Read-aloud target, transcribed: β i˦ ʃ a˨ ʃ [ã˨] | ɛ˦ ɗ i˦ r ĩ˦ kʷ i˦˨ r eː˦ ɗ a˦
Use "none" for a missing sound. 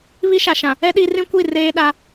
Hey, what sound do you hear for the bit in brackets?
ã˨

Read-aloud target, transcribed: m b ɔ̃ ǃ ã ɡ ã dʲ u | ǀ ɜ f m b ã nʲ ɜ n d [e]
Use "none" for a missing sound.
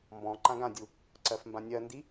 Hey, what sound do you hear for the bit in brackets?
i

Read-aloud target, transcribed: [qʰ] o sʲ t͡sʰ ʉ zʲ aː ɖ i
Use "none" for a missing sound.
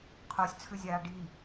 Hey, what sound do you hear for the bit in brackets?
qʰ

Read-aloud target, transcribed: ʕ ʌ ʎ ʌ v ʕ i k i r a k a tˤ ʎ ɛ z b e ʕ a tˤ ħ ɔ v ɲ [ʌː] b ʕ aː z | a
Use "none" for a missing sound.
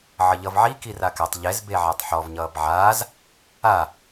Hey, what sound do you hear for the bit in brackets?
ʌː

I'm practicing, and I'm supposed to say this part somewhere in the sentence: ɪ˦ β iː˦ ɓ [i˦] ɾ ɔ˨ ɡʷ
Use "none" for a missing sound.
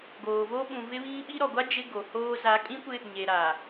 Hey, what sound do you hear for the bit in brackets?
i˦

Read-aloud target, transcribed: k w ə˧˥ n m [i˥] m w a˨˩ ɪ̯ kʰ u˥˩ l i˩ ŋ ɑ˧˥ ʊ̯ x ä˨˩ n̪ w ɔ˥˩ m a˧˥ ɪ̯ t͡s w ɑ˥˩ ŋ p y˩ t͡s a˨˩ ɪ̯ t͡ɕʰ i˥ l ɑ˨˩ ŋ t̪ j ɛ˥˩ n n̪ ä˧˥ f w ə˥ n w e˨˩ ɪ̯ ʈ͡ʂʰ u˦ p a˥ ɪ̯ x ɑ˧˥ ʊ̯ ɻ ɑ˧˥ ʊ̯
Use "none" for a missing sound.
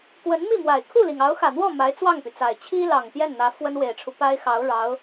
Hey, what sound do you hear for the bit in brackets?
i˥˩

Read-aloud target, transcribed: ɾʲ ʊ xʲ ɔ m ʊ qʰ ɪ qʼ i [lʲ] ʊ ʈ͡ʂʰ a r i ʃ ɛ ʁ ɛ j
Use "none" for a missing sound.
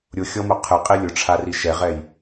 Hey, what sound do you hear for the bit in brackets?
lʲ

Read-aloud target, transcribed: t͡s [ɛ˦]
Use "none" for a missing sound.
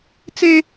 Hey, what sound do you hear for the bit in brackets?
e˦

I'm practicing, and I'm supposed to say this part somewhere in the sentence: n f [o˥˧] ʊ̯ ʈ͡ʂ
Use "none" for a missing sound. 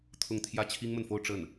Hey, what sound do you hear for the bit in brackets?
o˥˧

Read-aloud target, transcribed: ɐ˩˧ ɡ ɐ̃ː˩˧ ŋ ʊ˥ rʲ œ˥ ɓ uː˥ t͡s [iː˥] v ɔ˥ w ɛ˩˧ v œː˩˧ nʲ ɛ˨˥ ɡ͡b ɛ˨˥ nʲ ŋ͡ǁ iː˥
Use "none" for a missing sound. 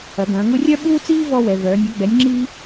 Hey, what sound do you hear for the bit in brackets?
iː˥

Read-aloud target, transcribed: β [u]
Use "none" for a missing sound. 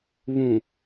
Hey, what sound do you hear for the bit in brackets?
ũ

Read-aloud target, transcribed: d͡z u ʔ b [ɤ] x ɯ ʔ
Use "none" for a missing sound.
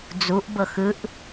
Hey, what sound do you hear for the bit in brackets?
ɤ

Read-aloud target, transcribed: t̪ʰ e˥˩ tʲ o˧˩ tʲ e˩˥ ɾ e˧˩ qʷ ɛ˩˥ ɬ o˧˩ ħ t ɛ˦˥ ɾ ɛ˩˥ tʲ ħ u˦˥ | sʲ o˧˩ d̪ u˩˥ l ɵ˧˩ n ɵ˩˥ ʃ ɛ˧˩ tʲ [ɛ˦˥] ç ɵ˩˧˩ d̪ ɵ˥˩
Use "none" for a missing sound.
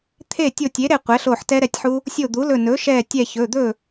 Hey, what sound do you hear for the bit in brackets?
ɛ˧˩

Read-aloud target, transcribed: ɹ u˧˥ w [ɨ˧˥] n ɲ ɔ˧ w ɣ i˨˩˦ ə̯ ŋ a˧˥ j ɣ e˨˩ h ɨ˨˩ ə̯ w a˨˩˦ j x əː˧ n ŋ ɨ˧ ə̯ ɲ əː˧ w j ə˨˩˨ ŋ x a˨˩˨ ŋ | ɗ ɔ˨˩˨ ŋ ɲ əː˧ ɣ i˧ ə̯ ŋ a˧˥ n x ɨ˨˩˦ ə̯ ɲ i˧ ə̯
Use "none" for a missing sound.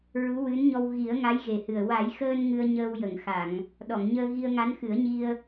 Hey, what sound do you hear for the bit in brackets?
ɨ˧˥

